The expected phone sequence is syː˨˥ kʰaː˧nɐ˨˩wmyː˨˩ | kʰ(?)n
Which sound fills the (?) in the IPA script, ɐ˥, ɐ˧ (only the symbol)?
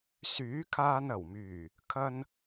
ɐ˧